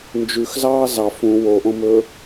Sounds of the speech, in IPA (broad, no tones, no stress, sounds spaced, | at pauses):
n d͡ʒ ʉ x z ɑː z ɑ f ũ w o ʔ õ m ɵː